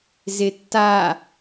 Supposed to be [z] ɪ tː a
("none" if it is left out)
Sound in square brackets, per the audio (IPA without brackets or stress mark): z